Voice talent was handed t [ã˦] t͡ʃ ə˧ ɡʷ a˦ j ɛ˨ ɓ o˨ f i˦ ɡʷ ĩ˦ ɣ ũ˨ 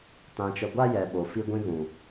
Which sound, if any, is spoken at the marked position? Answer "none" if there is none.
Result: ã˧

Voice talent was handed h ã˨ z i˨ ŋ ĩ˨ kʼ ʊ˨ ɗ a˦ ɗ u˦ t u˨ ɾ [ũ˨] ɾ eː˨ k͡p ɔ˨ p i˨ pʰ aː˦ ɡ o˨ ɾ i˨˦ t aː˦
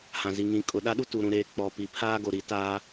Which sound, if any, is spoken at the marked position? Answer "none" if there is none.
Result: ũ˨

